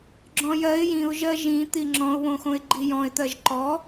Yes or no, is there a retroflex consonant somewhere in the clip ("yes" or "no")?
no